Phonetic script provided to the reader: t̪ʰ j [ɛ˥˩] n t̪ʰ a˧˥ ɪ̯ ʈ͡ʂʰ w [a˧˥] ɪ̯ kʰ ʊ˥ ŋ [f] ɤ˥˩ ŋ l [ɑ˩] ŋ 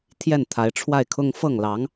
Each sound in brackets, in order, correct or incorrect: correct, incorrect: a˥˩, correct, incorrect: ɑ˧˥

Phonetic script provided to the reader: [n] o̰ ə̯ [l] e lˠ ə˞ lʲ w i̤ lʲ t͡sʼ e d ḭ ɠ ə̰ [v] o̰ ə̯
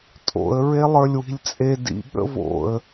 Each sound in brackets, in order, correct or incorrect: incorrect: tʼ, incorrect: ɹ, correct

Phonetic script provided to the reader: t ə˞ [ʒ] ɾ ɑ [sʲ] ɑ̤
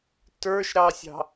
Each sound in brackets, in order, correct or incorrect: incorrect: ʃ, correct

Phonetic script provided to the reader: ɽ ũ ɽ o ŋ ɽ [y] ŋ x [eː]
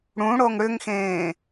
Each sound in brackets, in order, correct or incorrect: incorrect: ʏ, incorrect: ẽː

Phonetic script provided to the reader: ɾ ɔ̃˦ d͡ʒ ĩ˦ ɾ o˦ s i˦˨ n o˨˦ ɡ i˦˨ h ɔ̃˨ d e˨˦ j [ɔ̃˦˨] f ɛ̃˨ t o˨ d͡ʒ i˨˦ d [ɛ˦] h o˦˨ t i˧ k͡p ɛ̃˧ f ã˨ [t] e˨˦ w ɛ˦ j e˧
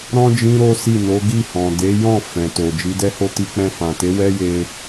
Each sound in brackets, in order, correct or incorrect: correct, correct, correct

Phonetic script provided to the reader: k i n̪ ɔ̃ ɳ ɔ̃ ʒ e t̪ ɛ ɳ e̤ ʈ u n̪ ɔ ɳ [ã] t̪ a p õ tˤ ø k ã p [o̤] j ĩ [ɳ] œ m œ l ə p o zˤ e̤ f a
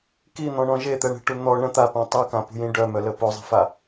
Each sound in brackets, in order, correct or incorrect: incorrect: ə̃, incorrect: ṳ, incorrect: ɖ

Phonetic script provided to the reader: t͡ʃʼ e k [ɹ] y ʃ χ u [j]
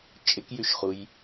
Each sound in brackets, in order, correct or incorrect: incorrect: j, correct

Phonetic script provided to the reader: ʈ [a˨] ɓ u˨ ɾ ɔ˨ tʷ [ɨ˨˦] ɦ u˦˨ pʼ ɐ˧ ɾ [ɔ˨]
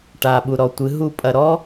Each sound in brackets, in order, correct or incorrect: correct, correct, incorrect: ɔ˦

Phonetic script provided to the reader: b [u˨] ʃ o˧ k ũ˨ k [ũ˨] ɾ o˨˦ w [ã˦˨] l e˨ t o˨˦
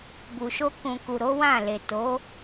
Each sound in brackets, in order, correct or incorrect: correct, incorrect: u˨, correct

